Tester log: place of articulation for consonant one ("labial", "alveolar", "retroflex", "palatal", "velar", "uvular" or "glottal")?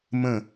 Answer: labial